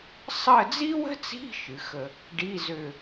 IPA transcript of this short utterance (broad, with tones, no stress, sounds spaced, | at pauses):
sˤ ə˦˨ d͡z i˥ w ə̤˥ t͡s i̤˧˥˧ ʃ ɨ˩˧ x ə˦˨ | ɖ i˧˥˧ z ø˦˨